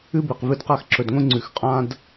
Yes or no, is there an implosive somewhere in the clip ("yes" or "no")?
no